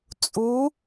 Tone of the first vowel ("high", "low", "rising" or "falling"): rising